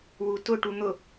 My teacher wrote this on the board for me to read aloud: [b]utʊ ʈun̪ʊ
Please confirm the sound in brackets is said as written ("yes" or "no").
no